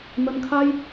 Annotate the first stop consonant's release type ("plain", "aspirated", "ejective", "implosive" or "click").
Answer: aspirated